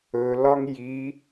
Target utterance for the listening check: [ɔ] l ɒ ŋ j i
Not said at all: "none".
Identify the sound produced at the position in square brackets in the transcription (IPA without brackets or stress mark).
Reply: ɵ